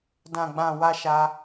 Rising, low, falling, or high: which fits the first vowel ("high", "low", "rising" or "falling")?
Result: low